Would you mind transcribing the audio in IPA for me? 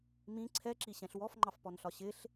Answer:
m ĩ ǀʰ ɛ ǁ i ɕ ɛ̃ ɬ w ɔ f ŋ͡ǃ ɑ f p ɔ n ɬ ɒ ɕ ɪ ɬ

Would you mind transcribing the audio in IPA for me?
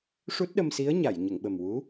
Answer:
ʂ u˦˥ t̚ ɗ ə˧ m s i˧˥ ə̯ ɲ a˨˩˨ j ɲ ə˨˩˨ ŋ ɓ ə˨˩ m w u˧˥

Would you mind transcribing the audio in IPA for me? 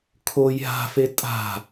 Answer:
kʰ o j ɦ a̤ f e tʼ a̤

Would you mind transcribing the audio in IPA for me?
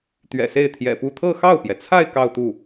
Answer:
t̪ ɥ ɛ̰˨˩ s e˥˩ ɪ̯ t̪ʰ j ɛ̰˨˩ p u˥˧ t̪ʰ ɤ˥˧ x ɑ˥˩ ʊ̯ p j ɛ˩ t͡sʰ a˥˧ ɪ̯ k ɑ˥˧ ʊ̯ t̪ u˥˩

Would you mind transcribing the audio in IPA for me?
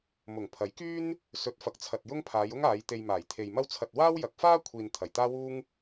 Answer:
m ʊ˨˩ ŋ pʰ ɐ˨˥ j k yː˥ n | s ɵ˨˥ t̚ f ɐ˨ k̚ t͡sʰ ɐ˨ t̚ j ʊ˥ ŋ pʰ aː˨˧ j ʊ˥ ŋ aː˨˧ j t̪ e˧ j m aː˨˩ j t̪ʰ e˨ j m ɐ˥ w t͡sʰ ɐ˧ t̚ w aː˥ w j ɐ˨˥ k̚ f aː˥ kʷʰ iː˨ n t̪ʰ ɐ˨˩ j t̪ aː˥ w uː˥ ŋ

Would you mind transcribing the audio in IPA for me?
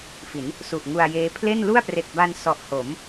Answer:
f i˩˦ n | s u˨˩ ʔ ŋ u˧ a̯ j eː˦˥ pʰ l e˥˩ n l u˥˩ a̯ p r e˨˩ k̚ b a˧ n s ɔ˨˩ ʔ h o˩˦ m

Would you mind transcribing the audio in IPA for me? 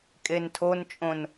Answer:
kʼ e n tʰ o n t͡ʃʼ õ n

